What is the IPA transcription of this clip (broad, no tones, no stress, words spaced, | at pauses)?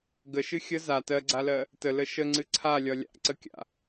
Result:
ɡəʃɨ xʲə za tɜɡ͡ǀalɜ | tələ ʃəŋ͡ǀɨ ǀʰalʲɒ lʲa̰ǀəkʲa̰